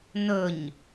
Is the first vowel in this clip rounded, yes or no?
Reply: yes